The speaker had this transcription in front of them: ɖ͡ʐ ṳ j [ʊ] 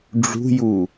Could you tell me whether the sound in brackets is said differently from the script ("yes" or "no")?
yes